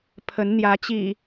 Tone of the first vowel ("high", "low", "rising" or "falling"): rising